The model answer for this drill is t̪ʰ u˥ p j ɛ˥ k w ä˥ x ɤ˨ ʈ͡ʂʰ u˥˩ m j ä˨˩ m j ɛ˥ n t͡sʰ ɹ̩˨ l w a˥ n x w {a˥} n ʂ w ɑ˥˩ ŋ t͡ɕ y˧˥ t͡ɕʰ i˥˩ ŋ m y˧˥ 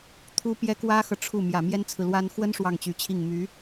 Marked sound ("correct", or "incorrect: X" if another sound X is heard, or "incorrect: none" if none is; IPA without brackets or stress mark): incorrect: ə˥